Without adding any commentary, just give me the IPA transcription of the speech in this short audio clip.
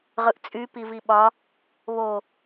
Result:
ʁɯʔt͡sʼy piviɓɒ | βo

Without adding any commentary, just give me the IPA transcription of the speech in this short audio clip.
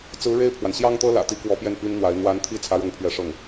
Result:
t͡sɹ̩˧˥ɻe˥˩ɪ̯pʰwa˩n ɕjɑ˥ŋt̪ɤ˥lä̰˨˩t̪i˧˥ kwɔ˧˥pjɛ˥˩n pi˥nn̪wa˧˥ɪ̯ n̪wa˧˥nt̪ʰi˥˩ t͡sʰä˥ɻɤ˥ŋpʰɥɛ˥˧ʂɤ˥˩ŋ

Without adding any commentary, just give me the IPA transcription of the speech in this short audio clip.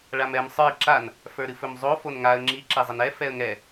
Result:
ɭamɛm sˤə˞ɪ̯ ǁan | fə˞ɾɨfɵmzˤo fonŋaə̯ ŋ͡ǁi ǁɛzˤənɛ fɛə̯ŋɛ

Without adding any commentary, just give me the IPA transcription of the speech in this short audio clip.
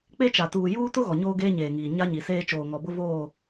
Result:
k͡pe˦t͡ʃa˨tuː˨ juː˦ tʊ˦ ɣɔ˨ɲoː˦ ɡeː˦ɲeː˨ŋiː˨ ɲa˦ɲi˨seː˦ t͡ʃoː˨ŋɔ˨bʊ˦ voː˦˨

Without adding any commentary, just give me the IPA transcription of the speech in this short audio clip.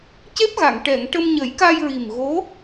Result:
ce˦˥p̚ɣa˨˩˨ŋ ʈɛ˨˩˨ŋ ʈə˧mɲə˨˩˦jka˧j ɹi˨˩mɣo˧˥

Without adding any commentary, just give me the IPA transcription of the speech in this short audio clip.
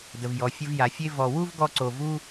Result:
də˩vjɔ˩ fʲə˦vja˨fʲe˥ vɔ˨wu˥v ɡɔ˦ǀo˨ vu˥

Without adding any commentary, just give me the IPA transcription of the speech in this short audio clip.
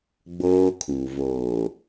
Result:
ɡ͡boː˦ kʰuː˨ voː˨

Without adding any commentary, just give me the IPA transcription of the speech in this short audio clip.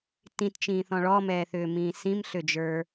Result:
tĩtt͡ʃĩːθɔ̃ ɭɔmɛːθʏːmĩː sĩmɬʏd͡ʒə˞

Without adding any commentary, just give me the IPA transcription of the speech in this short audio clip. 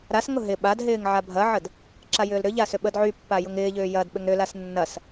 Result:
ɾasŋʊ ɦɪ ɓad ɦɪːŋʕabʱɐʕəd | ǁajʏːlɾʏʎa sʏɓədʕypːa jʊŋɪːʎʏː jɐd ɓʏŋɾʏlas nːɐs

